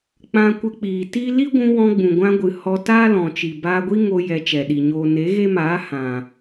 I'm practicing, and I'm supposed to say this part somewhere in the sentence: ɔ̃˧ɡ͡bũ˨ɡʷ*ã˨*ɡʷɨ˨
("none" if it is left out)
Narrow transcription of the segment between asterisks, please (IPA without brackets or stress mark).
ã˧